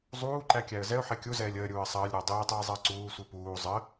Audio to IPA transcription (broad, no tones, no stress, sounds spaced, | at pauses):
zˤ uː ǃ æ kʲ æ ə̯ z ɛ ʊ̯ ħ ɛ kʲ u z ɛː lʲ əː ɾʲ uː ə̯ sˤ əː lʲ ɾ əː dˤ iː tˤ iː zˤ əː ǀ uː sʷ i p uː zˤ ə